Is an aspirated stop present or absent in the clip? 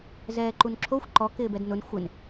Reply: present